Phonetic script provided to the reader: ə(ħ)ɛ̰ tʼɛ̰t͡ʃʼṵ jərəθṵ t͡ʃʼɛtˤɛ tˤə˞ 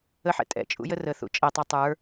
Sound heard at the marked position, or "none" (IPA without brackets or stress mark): ħ